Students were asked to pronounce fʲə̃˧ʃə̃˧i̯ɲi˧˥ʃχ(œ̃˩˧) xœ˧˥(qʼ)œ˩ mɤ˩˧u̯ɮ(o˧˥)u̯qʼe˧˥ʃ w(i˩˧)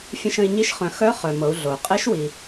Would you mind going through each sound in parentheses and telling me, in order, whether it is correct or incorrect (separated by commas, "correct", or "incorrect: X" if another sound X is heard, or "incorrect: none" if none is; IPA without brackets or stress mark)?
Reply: correct, incorrect: χ, incorrect: o˩, incorrect: i˩